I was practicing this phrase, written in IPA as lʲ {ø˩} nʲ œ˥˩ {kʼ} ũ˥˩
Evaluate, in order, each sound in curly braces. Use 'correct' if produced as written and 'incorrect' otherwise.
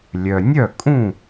incorrect: œ˩, correct

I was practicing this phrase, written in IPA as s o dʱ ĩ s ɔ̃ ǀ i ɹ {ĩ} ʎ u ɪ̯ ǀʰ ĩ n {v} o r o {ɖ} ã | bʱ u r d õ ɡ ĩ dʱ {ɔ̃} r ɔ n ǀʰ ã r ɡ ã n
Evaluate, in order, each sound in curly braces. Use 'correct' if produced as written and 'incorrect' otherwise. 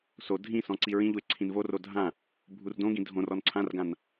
correct, correct, incorrect: dʱ, incorrect: õ

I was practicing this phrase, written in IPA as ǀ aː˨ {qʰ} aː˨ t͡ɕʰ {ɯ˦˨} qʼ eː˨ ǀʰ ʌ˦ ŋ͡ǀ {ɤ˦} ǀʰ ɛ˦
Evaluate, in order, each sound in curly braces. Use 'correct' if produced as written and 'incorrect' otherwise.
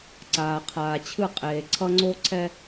correct, correct, incorrect: o˦

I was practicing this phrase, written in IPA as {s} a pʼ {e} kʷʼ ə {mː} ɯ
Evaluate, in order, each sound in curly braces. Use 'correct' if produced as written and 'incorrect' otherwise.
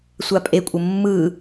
incorrect: sʷ, correct, correct

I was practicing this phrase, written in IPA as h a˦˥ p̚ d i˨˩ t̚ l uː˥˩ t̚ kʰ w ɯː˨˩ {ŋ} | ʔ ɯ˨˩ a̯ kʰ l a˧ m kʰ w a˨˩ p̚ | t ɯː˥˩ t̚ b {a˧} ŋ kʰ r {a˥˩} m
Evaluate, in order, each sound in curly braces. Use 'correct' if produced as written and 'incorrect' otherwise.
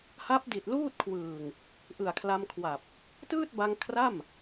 correct, correct, correct

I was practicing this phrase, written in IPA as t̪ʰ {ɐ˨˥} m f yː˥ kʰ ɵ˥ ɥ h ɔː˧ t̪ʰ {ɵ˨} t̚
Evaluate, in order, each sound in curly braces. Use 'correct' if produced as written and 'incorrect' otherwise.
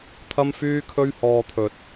incorrect: ɐ˥, correct

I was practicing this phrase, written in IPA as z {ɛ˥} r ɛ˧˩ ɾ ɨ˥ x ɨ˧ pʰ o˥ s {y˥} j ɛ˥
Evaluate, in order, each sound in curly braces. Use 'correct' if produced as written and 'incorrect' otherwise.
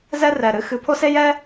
correct, incorrect: e˥

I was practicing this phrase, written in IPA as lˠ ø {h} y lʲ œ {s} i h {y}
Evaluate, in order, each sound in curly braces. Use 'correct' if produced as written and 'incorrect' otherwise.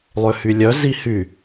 correct, incorrect: z, correct

